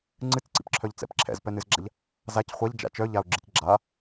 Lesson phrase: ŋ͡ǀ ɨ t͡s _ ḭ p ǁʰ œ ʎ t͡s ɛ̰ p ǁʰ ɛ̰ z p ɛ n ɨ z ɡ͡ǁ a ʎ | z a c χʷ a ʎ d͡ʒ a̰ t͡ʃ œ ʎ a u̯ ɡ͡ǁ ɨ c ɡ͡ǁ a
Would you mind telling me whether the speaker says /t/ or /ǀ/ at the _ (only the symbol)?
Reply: ǀ